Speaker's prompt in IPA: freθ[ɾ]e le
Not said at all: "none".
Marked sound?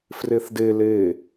d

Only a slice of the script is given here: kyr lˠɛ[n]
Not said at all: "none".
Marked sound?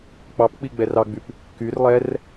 r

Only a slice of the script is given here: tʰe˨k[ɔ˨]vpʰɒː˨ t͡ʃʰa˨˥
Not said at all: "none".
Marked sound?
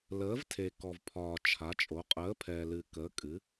ɔ˨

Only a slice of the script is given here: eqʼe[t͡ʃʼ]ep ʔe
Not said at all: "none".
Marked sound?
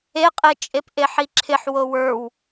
t͡ʃʼ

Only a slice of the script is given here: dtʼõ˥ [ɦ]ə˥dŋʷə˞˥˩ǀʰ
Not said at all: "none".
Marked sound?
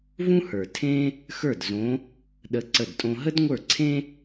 ɦ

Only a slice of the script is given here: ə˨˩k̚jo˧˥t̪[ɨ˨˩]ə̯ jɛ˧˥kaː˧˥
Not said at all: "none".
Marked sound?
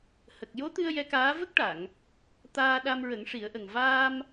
ɨ˧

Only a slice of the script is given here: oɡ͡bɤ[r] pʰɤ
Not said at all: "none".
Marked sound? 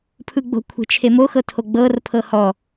r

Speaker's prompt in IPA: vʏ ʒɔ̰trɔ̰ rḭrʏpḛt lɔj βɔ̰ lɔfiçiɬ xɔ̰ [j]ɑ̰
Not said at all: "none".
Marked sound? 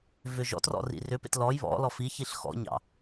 ɲ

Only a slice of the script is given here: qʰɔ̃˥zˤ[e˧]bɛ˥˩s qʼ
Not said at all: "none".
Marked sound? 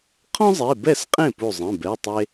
e˩˧˩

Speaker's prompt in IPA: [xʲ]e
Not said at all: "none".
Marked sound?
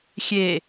xʲ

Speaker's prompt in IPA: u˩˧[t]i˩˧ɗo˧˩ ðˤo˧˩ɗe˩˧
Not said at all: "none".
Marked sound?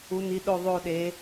n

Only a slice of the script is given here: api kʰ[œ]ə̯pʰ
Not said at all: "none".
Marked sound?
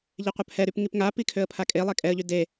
ø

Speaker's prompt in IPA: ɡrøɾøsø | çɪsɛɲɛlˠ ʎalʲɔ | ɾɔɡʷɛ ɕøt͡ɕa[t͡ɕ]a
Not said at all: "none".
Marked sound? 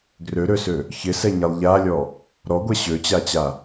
t͡ɕ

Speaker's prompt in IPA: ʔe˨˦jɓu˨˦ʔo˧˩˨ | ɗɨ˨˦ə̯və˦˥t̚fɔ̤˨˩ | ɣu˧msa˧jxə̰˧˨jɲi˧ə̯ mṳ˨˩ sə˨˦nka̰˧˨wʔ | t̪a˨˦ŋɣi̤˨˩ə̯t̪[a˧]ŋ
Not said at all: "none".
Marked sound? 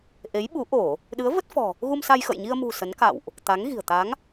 a˨˦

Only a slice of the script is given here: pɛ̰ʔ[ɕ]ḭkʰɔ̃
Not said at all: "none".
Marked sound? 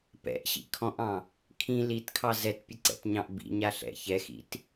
ɕ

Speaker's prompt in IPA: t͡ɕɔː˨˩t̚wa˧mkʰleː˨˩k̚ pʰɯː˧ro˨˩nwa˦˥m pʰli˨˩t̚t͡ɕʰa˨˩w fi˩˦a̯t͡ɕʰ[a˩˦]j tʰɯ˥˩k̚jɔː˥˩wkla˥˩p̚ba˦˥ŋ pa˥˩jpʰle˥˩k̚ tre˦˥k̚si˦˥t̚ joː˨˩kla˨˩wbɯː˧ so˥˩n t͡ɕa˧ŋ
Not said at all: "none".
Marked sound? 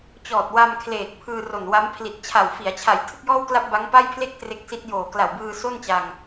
a˨˩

